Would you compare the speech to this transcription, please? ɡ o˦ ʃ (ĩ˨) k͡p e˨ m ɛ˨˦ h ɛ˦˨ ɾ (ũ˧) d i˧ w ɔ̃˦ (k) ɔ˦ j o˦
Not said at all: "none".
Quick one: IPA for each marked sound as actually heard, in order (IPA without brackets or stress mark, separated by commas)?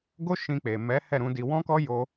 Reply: ĩ˧, ũ˧, k